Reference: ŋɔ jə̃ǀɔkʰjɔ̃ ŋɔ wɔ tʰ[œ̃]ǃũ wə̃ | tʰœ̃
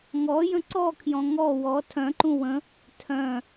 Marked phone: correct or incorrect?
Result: correct